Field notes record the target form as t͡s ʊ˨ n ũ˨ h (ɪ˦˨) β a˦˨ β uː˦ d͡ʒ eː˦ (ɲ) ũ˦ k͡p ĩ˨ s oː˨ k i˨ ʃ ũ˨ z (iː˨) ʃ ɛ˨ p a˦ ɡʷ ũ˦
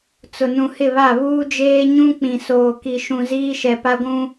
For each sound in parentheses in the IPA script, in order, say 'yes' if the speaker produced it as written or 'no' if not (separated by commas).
yes, yes, no